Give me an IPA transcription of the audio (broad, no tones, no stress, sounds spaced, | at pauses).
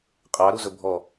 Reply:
qʼ ɑ ɾ u z ɵ bʱ ɔ